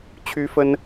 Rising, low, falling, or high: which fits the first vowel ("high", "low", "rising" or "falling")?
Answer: high